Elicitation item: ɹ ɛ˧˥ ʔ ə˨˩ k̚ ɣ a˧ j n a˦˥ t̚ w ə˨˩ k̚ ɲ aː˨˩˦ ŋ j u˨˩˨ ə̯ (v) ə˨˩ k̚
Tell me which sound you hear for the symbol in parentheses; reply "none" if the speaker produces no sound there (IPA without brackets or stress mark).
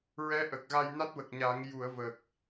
v